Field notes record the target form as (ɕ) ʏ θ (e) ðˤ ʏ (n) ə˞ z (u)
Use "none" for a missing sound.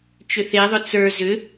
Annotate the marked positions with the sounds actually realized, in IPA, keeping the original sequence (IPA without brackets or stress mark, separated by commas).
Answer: t͡ʃ, e, t͡s, ʏ